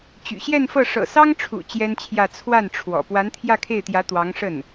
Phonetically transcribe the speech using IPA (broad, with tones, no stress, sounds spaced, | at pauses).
t͡ɕ y̰˨˩ ɕ j ɛ˥˧ n f ɤ˥˩ ʂ ɤ̰˨˩ s ɑ˥ ŋ ʈ͡ʂʰ ṵ˨˩ t͡ɕ j ɛ˥ n t͡ɕʰ j ä˥˧ t͡sʰ w a˥˩ n ʈ͡ʂʰ w ɔ̰˨˩ p w a˧˥ n t̪ʰ j ä˥˧ kʰ e˥˩ ɪ̯ t̪ j ä˧˥ t̪ w ɑ˧˥ ŋ ʂ ə˥˩ n